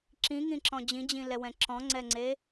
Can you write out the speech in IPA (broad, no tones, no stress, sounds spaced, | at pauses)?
ǁ ĩ ŋ ĩ ǁ ɔ̃ d͡ʑ ĩ d͡ʑ ĩ l ɛ w ɛ̃ ǁ ɔ̃ ŋ͡ǀ ɛ ŋ͡ǀ e